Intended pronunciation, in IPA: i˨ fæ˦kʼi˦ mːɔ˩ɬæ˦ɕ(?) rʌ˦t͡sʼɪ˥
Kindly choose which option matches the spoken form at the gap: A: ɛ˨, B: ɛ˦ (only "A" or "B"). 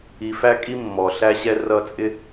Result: B